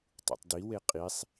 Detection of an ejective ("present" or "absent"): present